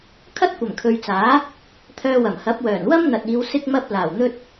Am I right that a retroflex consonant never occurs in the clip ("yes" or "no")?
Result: yes